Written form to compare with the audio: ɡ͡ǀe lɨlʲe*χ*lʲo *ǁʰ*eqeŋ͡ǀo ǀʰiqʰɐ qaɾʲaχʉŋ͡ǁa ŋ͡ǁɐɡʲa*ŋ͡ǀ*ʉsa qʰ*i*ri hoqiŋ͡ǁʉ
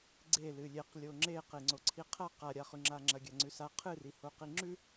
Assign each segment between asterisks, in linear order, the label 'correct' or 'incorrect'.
incorrect: q, incorrect: ŋ͡ǁ, correct, incorrect: ɨ

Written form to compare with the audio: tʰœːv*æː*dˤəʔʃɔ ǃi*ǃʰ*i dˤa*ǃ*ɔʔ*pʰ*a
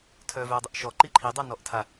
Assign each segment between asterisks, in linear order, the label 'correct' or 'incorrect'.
incorrect: œː, correct, incorrect: n, incorrect: tʰ

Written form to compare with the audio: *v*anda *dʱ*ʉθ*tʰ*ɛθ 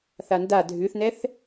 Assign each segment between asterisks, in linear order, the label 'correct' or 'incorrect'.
incorrect: θ, correct, incorrect: n

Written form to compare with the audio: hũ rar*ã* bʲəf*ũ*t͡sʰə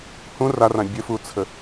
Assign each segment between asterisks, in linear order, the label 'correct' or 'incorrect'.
correct, incorrect: u

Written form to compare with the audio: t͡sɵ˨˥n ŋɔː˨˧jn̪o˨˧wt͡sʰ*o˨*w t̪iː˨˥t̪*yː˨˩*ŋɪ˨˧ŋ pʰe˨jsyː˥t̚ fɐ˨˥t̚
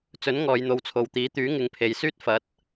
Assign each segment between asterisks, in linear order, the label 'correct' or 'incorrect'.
correct, incorrect: yː˨˥

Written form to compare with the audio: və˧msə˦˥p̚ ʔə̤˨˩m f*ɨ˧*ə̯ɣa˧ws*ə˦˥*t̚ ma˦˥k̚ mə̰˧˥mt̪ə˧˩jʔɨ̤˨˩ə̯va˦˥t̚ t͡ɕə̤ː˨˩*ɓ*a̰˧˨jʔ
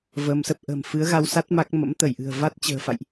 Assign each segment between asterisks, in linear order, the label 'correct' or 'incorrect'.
incorrect: ɨ˨˦, incorrect: a˦˥, incorrect: f

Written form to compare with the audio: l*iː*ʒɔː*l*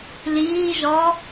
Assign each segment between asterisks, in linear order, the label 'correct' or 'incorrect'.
correct, incorrect: none

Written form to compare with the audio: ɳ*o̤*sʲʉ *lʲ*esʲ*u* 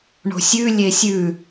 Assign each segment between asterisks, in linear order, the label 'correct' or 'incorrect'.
correct, correct, incorrect: ʉ

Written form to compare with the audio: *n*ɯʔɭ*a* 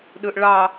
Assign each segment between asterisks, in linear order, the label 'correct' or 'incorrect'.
incorrect: ɗ, incorrect: ɑ

